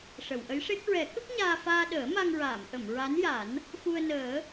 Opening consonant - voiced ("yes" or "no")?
no